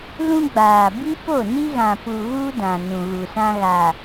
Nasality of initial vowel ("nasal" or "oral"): nasal